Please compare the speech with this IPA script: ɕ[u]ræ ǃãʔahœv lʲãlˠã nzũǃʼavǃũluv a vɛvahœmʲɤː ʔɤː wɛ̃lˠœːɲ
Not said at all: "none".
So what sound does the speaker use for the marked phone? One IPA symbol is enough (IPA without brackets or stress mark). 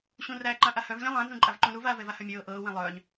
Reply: ũ